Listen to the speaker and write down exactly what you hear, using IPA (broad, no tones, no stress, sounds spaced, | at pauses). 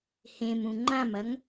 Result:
h ẽ m ũ ŋ͡ǃ ã m ɐ ŋ